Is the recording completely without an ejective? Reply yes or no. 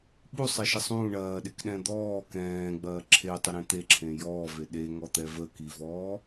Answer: yes